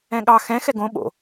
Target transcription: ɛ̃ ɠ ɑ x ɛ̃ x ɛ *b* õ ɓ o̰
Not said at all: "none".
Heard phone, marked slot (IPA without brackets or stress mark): ɡ